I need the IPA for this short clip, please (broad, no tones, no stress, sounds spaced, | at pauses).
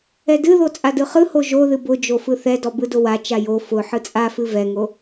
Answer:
ɛ d ɨ ð o t͡sʼ a d ɯ χ ɯ h o ʒ o ð ɨ b ʊ d͡ʒ o f ɯ θ ɛ d ɔ b ɯ d ʊ w a t͡ʃ a j o f ʊ ħ ɯ t͡sʼ a f ɨ v ɛ ŋ o